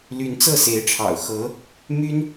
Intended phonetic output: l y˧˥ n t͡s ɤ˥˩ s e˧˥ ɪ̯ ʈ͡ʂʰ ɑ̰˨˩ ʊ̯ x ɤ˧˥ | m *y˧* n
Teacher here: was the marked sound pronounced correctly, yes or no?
no